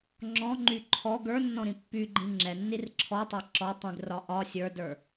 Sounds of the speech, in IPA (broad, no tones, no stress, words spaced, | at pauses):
ŋ͡ǁɔ̃ŋ͡ǃy ǃʰɔ ɡə˞nːɔ̃ɾĩ pːyɡ͡ǃĩ ŋ͡ǁɛnːir ǁʰɔtˤa ǁɔ tˤĩɡrɒ ʔɒ sʲə˞də˞